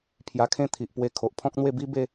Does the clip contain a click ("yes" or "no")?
no